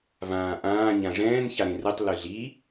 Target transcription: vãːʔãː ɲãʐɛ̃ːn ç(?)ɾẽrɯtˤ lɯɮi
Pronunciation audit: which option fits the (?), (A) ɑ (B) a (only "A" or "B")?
B